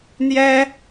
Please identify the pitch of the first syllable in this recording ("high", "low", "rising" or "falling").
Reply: high